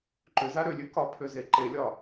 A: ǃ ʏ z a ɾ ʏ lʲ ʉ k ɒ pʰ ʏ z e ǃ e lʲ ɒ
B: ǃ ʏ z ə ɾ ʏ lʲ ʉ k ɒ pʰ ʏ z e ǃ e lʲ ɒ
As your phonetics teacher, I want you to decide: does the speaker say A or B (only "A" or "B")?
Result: A